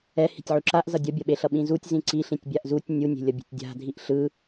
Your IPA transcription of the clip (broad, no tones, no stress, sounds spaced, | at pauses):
ɛ h i̤ tʲ ʕ u ǁ a ʔ z ʌ dʲ ʌ bʲ ʌ ɓ e ɬ ʌ ɓ ĩ z u tʲ z ĩ ǀ i ɬ ĩ tʲ bʲ a ʔ z u tʲ nʲ u nʲ e̤ lʲ ʌ bʲ e̤ tʲ dʲ a̤ dʱ i ʔ ɬ ɯ